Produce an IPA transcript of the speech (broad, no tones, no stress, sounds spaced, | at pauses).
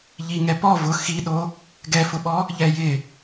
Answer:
ʎ i ŋ ɛ p ɔ v ʊ x i ɗ o | ɡ ɛ f ʊ ɓ ɔ | ʎ ɛ j ɪ